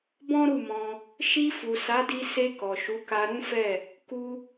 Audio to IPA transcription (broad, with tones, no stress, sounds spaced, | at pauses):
b ɔ̃˦ ɾ u˦˨ m ɔ̃˧ | ʃ i˧ f u˨ s a˨˦ d i˧ s e˧ k ɔ˨ ʃ u˨˦ k a˧ ɾ ũ˦ f ɛ˦˨ | k u˧